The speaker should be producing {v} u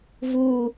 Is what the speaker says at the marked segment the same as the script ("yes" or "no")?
yes